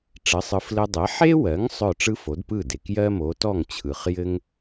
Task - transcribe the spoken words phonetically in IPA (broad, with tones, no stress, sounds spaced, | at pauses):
ʈ͡ʂ ɘ˩˥ sˤ ɯ˩˥ f l ɘ˧ dˤ e˩˥ ħ e˥ w ɜ˩˥ ŋ sˤ œ˥˩ ʈ͡ʂ ɯ˥ f o˩˥ d p ɯ˥˩ d e˩ k j ɜ˥ m o˩˥ t ɔ˥˩ ŋ t͡ɕʰ ɯ˩ χ j ɘ˥ ŋ